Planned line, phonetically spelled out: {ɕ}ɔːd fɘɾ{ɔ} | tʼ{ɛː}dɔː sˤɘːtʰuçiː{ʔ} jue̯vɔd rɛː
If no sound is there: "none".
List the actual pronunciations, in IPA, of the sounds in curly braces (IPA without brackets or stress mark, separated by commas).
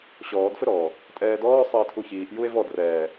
ɕ, ɔː, ɛː, ʔ